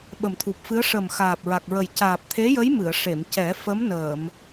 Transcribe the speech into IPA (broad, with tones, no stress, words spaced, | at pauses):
ɓə˨˩mt̪ʰu˨˩p̚fɨ˧˥ə̯ ʂə˨˩m xaː˨˩p̚ɹa˨˩k̚ɹə˨˩j caː˨˩p̚t̪ʰe˧˥jə˧˥j mɨ˨˩˨ə̯ʂe˨˩˨mcɛ˨˩˦ fə˧˥mnəː˨˩˨m